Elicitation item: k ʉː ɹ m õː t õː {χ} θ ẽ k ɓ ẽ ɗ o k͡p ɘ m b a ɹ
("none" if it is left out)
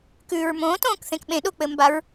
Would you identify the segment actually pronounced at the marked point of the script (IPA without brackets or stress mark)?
k